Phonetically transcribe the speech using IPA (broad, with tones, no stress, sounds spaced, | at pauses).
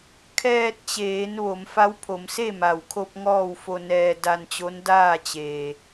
kʰ ɛː˧ t̚ t͡ɕ eː˩˧ n ʋ o˩˧ m f a˧˥ w pʰ o˩˧ m s e˥˨ m a˩ w kʰ o˧ p̚ ŋ ɔː˥˨ w f o˧ n ɛː˧ d a˧ n t͡ɕ o˧˥ n d aː˥˨ t͡ɕ eː˩